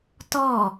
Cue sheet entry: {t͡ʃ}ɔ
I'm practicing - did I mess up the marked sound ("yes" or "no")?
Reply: yes